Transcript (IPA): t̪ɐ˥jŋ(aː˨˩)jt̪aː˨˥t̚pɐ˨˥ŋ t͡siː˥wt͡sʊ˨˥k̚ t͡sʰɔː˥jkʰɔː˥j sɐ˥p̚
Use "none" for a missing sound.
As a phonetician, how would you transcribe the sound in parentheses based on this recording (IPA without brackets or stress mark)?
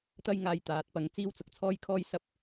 aː˧